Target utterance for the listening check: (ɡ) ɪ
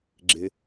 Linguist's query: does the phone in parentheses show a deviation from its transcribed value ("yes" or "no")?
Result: yes